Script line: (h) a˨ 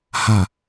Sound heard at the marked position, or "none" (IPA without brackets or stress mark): h